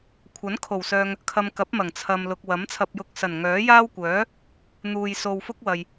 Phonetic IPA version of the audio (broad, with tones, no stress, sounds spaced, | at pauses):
kʷʰ ɐ˨˥ n kʰ o˨˩ w s œː˨ ŋ | kʰ ɐ˨ m k ɐ˨˥ p̚ m ɐ˨˩ ŋ t͡sʰ ɐ˨ m l ʊ˨ k̚ w ɐ˨˥ m t͡sʰ ɐ˧ p̚ j ʊ˧ k̚ s ɐ˨˩ n ŋ œː˨˥ j aː˥ w kʷ œː˨˥ | n̪ uː˧ j s o˧ w f ʊ˥ k̚ w ɐ˨ j